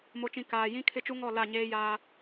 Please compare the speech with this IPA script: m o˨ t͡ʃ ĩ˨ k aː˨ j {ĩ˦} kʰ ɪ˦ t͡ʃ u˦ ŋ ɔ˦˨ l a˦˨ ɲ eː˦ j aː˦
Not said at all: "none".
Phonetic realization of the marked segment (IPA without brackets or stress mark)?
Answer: ĩ˦